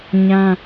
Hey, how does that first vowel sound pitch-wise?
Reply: high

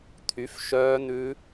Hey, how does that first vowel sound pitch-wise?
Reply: rising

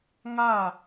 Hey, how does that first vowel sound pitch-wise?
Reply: falling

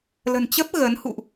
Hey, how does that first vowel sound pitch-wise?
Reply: low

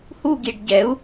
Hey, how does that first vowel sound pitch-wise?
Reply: falling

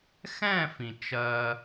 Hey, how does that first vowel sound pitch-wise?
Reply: falling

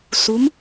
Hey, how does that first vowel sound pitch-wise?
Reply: rising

